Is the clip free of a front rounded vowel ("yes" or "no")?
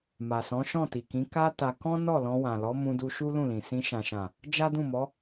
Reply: yes